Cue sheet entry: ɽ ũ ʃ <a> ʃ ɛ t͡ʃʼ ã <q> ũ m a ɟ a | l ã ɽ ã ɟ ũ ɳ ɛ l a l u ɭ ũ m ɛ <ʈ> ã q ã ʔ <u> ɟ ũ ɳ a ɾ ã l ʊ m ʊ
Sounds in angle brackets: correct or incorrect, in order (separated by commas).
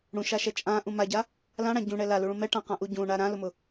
correct, incorrect, correct, correct